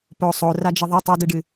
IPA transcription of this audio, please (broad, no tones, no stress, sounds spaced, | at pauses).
p o sˤ o r a d͡ʒ ɨ ðˤ i tˤ o d ɨ ɖ ɨ